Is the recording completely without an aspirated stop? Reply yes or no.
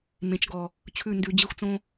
no